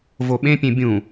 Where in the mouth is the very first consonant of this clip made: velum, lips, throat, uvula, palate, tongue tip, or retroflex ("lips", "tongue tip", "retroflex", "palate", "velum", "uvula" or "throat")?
lips